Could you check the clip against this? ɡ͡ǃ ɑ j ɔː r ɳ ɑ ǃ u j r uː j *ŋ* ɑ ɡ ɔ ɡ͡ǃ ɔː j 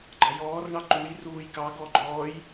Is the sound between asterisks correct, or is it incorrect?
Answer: incorrect: k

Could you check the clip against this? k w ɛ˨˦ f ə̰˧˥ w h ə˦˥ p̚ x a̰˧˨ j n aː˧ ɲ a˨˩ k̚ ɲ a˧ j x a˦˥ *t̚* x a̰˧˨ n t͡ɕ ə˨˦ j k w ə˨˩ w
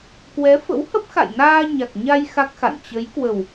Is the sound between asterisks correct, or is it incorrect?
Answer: incorrect: k̚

